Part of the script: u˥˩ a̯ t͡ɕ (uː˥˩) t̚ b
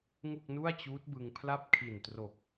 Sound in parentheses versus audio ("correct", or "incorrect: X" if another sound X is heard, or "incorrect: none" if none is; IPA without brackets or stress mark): incorrect: uː˦˥